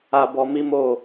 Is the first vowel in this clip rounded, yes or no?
no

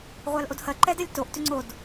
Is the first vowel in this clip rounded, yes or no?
no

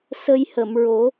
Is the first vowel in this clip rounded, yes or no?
no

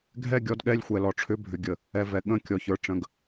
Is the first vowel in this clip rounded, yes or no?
no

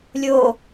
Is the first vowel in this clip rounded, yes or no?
yes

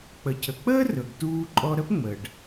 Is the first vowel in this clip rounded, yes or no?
no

